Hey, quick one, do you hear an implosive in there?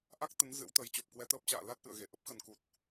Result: no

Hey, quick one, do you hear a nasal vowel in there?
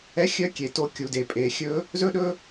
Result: no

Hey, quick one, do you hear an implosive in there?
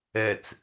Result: no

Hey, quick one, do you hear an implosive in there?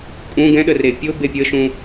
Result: yes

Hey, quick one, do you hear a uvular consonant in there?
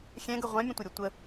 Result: yes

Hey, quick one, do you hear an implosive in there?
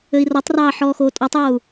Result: no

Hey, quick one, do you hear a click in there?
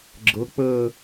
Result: yes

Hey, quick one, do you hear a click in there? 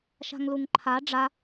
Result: yes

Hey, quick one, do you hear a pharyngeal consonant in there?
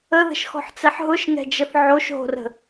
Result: yes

